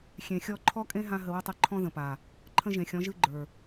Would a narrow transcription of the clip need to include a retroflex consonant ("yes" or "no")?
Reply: no